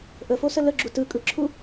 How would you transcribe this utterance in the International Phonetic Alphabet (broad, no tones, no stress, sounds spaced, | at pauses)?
ʔ ə f o s ə l ə ɡ͡ǁ u t ɯ kʼ ɯ ǁʰ u